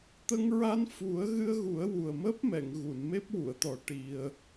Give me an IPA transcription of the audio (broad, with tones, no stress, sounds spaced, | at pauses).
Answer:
t̪ ə˧ ŋ ɹ a˧ n f u˨˩˦ ə̯ ɣ ɨ˧ ə̯ ɣ u˨˩˦ ə̯ w u˨˩ ə̯ m əː˦˥ p̚ m ɛ˨˩˨ ŋ ɣ u˨˩˨ n m e˦˥ p̚ w u˨˩˨ ə̯ t̪ ɔ˨˩˦ ʈ i˧ ə̯